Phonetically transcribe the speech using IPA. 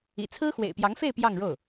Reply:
ḭ˨˩ t͡sʰ ɹ̩˥ x w ḛ˨˩ ɪ̯ p j ɑ˧˥ ŋ f e˥˧ ɪ̯ p j ɑ˥˧ ŋ ɻ o˥˩ ʊ̯

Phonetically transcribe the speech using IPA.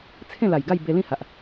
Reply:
t͡sʰ ẽ˥˧ l a˨˩ j ɡ a˥˧ j b e˧ l ĩ˥˧ h a˨ ʔ

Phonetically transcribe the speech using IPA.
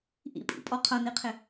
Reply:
ʔ ḭ pʼ ḭ pʼ ɔ qʰ ʌ n i qʰ ɪ

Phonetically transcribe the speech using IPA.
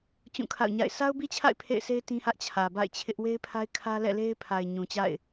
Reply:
t͡ɕ ũ˦˨ kʰ a̰˦˨ ʊ̯ ɲ a̰˦˨ ɪ̯ sʰ a˦ ʊ̯ b i˦ t͡ɕʰ a̰˦˨ ɪ̯ pʰ ḛ˦˨ ɪ̯ sʰ e˦ ɪ̯ t ĩ˦ h ä˦ ʔ t͡ɕʰ ä˨ b a̰˦˨ ɪ̯ t͡ɕʰ ɪ˦ ʔ w e˦ ɪ̯ pʰ a˦ ɪ̯ kʰ ä˦ l ɛ̰˦˨ l e˦ ɪ̯ pʰ a˨ ɪ̯ ɲ ũ˨ t͡ɕ a̰˦˨ ɪ̯

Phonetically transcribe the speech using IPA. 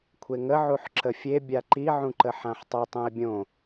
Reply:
kʷʰ e ŋ ə ʕ u ħ ǁ ə fʲ e bʲ a ǃ i ʕ ũ ǃ ə ħ ã ħ tˤ a tˤ ũ ɪ̯ bʲ õ

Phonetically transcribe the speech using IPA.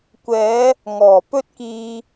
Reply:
kʷ ɛː˨˧ | ŋ ɔː˨˩ p ɵ˥ t̚ k iː˧

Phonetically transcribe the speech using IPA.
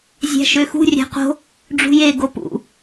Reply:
zʲ æ̤ ʃ ø x ṳ rʲ æ̤ q o̤ | ɖ͡ʐ ṳ j e ɡ o p ṵ

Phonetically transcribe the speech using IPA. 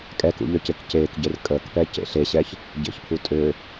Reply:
kʼ ɛ k ṵ ʎ œ c e k c eː k ɟ e r kʼ əː k p ɛ c ḛ ɬ e ɕ ɛ ç | ɟ ḛ ç pʰ u tʼ ø

